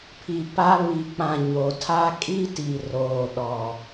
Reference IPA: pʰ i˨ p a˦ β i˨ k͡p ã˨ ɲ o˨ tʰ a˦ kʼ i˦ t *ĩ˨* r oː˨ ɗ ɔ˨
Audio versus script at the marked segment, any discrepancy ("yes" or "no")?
yes